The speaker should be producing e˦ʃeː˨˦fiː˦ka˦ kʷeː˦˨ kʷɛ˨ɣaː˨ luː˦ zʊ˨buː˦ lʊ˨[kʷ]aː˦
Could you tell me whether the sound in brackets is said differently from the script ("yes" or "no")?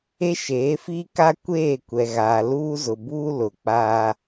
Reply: yes